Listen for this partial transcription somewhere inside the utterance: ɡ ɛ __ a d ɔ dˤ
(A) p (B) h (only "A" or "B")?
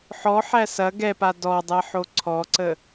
A